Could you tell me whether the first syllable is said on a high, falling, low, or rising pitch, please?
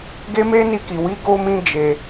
high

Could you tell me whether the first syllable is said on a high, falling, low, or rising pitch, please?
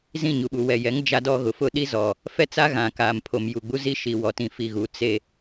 falling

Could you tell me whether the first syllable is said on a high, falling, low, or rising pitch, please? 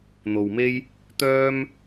low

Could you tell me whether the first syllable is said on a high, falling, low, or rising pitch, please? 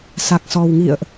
low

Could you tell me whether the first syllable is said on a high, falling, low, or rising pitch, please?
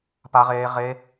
high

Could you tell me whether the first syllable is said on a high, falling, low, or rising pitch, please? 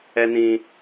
high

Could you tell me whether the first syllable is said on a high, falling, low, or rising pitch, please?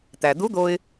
low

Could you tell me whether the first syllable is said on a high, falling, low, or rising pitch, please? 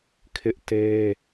high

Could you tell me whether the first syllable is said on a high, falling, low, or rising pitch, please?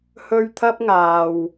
high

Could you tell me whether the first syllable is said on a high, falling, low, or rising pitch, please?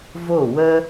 falling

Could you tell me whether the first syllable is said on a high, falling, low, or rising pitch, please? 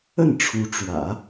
falling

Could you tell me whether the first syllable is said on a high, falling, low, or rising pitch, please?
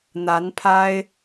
rising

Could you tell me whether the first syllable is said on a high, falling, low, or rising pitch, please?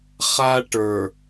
high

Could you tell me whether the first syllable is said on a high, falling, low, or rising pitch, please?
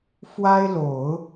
high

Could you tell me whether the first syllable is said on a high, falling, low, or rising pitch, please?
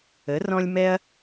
rising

